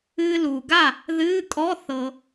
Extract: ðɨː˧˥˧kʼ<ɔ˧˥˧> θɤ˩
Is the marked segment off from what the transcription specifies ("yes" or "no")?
no